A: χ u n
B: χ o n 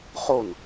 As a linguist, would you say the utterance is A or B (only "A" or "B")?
B